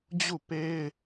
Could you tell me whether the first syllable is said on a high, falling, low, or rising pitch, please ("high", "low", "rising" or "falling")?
falling